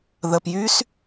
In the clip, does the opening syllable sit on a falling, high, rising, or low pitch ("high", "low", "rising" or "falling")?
low